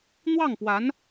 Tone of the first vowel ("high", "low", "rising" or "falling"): falling